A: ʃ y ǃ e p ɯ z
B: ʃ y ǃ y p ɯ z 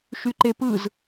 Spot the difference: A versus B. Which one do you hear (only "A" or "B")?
A